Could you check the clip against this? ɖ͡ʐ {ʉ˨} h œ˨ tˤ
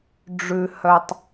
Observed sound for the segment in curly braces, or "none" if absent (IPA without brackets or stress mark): ʉ˨